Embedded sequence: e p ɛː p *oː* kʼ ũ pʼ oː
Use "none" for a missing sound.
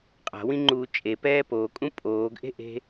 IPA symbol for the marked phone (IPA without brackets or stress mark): oː